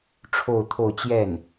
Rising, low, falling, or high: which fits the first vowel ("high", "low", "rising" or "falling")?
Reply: falling